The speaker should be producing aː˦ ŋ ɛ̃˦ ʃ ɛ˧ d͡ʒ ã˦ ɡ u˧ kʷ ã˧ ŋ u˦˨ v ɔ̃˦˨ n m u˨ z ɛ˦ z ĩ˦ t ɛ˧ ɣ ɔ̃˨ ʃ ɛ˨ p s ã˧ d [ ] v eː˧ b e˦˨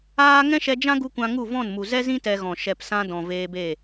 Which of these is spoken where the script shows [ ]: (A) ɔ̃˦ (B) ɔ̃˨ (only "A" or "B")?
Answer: B